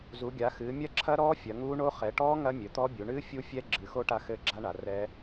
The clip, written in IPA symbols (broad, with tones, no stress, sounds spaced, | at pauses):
z u˩˧ ɡʲ a˩˧ x ɨː˩˧ mʲ ɐ˦˥ ǁʰ ɐ˦˥ ɾ ɔː˦˥ fʲ ɐ˩˧ ŋ uː˦˥ ɳ o˦˥ χ ɛ˩˧ ʈ ɔː˦˥ ŋ ɐ˦˥ mʲ ɘ˩˧ t̪ ɔ˦˥ bʲ u˩˧ ɳ ɨː˦˥ fʲ u˦˥ fʲ ɛ˦˥ ɡ͡ǁ ɨ˩˧ x o˦˥ ʈ a˦˥ x ɘː˦˥ ɡ͡ǁ a˦˥ ɳ a˩˧ r ɛ˦˥